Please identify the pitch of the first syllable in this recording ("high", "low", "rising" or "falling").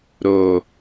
low